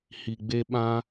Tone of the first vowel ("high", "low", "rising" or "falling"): low